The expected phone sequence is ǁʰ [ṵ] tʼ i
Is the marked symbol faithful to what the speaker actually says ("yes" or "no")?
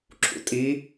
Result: yes